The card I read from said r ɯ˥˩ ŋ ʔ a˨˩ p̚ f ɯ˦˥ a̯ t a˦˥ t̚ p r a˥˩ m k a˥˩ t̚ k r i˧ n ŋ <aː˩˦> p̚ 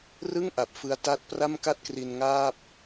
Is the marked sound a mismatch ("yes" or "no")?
yes